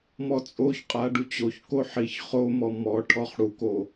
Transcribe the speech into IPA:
m ɔ t͡sʼ o ç qʼ a ɖ u t͡ɕ o ç k o ħ i ç χ o m ɔ m ɔ ʈʰ ɔ χ ɽ u k o

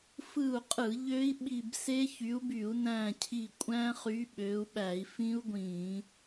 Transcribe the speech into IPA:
f ɯ˦˨ u̯ qʼ ɯ˧˩˧ ʎ ø˦˥ i̯ ɓ i˦˨ b s e˦˥ ç y˨˦ u̯ b y˧˩˧ u̯ n æ̃˦˨ cʰ i˦˨ kʷʼ æ̃˦˥ χ y˨˦ ɓ ø˨˦ u̯ ɓ æ˧˩˧ i̯ f ĩ˦˥ u̯ ɡʷ ĩ˧˩˧

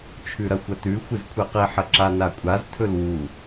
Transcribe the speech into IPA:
t͡ʃʰ ʉ ɾ ɐ xʷ ɐ t ʉ xʷ ɨ z kʷʰ e q i ħ ɐ ǁ a n a kʷʼ a z tʰ ɵ l w u

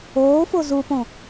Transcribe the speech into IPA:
oː f o z u p õ

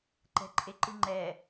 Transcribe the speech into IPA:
ǃ ɛ̤ ǃʼ e ǃ ɨ ŋ͡ǃ ɛ

